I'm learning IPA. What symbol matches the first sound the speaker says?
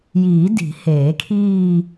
j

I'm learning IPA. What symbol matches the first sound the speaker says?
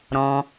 ɾ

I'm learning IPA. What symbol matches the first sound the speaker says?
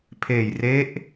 pʰ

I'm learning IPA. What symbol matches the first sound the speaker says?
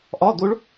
ʔ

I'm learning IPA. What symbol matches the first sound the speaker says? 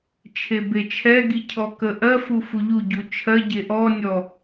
t͡ʃʰ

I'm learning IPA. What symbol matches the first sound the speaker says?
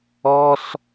ɔ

